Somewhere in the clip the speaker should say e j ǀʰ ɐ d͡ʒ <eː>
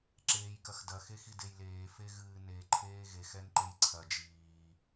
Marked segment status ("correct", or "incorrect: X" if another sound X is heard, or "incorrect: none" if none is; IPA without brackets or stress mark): incorrect: iː